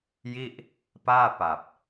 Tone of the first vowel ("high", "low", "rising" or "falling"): falling